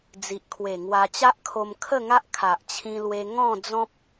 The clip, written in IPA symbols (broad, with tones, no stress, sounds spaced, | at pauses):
d͡z i˨ ʔ kʰ w e˨˩ ŋ w a˧ t͡ɕ a˦ ʔ kʰ o˧ m kʰ ə˥˧ ŋ a˦ ʔ kʰ a˨ ʔ t͡ɕʰ ĩ˧ l w e˧ ŋ ɔ̃˥˧ d͡z ɔ̃˦ p̚